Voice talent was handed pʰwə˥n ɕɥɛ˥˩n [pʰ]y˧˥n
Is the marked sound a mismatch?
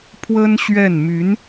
yes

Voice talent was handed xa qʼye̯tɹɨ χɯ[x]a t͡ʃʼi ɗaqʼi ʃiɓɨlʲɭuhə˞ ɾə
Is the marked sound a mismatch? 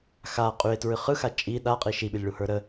no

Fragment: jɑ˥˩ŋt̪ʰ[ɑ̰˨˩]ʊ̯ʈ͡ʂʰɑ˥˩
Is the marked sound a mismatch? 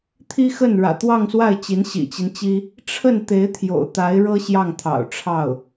no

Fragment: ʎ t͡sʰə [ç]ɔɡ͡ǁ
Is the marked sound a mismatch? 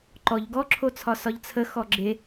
yes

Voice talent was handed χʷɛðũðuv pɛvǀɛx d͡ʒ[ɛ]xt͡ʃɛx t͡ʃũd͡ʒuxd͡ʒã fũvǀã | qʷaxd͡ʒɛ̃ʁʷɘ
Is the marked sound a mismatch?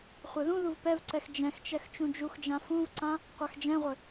yes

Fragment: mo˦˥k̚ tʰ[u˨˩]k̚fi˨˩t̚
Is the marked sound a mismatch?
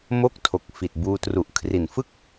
yes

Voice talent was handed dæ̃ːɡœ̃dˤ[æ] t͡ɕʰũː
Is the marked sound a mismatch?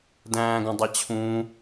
no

